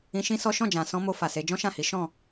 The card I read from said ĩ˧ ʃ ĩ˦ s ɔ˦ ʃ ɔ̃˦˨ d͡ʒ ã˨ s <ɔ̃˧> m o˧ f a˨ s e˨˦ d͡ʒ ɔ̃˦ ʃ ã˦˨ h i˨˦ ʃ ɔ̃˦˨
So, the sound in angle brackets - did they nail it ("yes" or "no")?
yes